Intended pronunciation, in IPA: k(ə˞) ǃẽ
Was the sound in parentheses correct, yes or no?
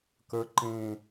yes